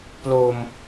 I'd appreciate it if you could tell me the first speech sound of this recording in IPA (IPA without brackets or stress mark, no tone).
p